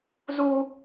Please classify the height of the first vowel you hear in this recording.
high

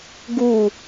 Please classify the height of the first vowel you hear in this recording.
high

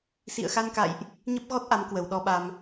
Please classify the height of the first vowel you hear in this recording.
high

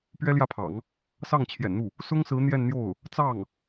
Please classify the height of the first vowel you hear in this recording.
mid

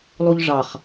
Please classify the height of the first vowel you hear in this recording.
high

